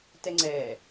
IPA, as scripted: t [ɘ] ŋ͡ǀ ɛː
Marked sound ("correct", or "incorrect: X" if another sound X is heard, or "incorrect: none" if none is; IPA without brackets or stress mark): incorrect: ɛ